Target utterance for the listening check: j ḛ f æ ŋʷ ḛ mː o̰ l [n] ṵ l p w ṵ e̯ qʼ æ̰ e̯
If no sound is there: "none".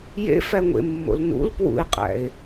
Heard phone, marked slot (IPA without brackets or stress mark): n